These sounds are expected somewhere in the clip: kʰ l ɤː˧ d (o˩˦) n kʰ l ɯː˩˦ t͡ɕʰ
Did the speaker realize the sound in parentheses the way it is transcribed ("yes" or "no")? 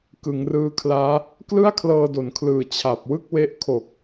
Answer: yes